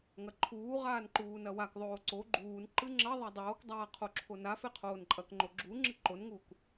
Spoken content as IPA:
ŋ ɐ ǃʰ uː ʁ aː n ǃ uː n ɐ w a k ðˤ oː ǀ o ɡ͡ǃ uː n ǃ ɨ ŋ͡ǁ ɐ ðˤ a dˤ oː k dˤ aː qʰ o ǁʰ o n a f e qʰ oː n ǃʼ ɐ k ŋ͡ǃ o ɡ͡ǁ u ŋ͡ǁ ɨ ǃ o n ŋ uː k

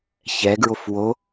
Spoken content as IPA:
ç ɛ ɡ ɹ o f w o

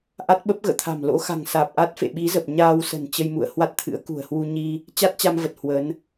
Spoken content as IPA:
ʔ a˦˥ t̚ ɓ ə˦˥ p̚ ɣ ə̰ː˧˨ t̪ʰ a̤˨˩ m l o̰˧˥ x a̤˨˩ ŋ s aː˨˩ p̚ ʔ a˦˥ t̚ f ḛ˧˨ ɓ i˨˦ z ə˨˩ p̚ ɲ aː˧ w s ə̤˨˩ n t͡ɕ ə˧ j m ṵ˧˨ ə̯ h w a˦˥ t̚ t̪ʰ ɨ̰˧˥ ə̯ k ṳ˨˩ ə̯ h w u˧ ɲ i˧ | t͡ɕ a˦˥ t̚ t͡ɕ a˧ m v ə˨˩ t̚ h w ə˨˦ n

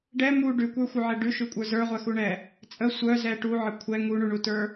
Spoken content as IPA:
ɖ ɛ m u ɖ ʉ kʷ ə˞ xʷ œ ʕ ɛ ɖ ʉ ʃ ʉ kʷʼ ə˞ z ə˞ ʁʷ ɛ x u ɳ ɛ | t͡sʼ ə sʷ œ z ɛ ʈ u ʕ ə kʷʰ ɛ ŋ u ɳ u ɳ u t ə˞

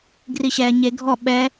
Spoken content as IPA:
ɡ r i ɕ ɛː ɲ e ɡʱ ɔ ɓ ɛ

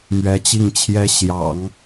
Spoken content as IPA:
m ɥ ɛ˧˥ t͡ɕ i˥˩ ŋ t͡ɕʰ j ɛ˥ ɕ j ɑ̰˨˩˦ ŋ

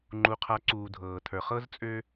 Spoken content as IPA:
ŋ͡ǃ u˨ qʰ a˨˦ ǀ uː˨ dʱ ɤː˨ tʰ ə˞˨ χ ɤ˦ z t͡sʼ ø˦

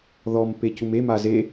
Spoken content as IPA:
ð ɔ m p e c u m e m a z e

